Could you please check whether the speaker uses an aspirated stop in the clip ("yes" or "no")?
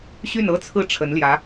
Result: yes